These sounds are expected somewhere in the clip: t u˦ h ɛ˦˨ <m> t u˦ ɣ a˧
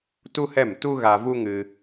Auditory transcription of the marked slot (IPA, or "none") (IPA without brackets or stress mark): m